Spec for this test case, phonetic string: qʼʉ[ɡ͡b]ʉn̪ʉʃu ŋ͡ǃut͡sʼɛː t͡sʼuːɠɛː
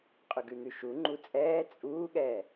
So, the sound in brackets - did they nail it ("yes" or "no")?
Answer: no